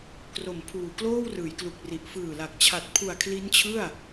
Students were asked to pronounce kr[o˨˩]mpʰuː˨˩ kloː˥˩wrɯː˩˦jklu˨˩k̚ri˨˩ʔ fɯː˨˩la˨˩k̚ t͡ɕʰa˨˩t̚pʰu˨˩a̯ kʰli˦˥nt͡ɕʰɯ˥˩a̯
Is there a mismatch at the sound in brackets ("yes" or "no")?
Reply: no